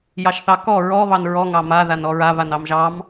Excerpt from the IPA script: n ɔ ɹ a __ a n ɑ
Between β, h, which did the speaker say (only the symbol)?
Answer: β